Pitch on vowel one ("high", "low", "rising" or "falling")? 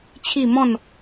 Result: falling